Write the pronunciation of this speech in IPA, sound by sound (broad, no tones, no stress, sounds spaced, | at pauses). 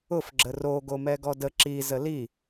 ʊ f ɡ͡ǁ ə r o ɡ o m ɛ ɡ ɔ d ə ǁ i z ə l i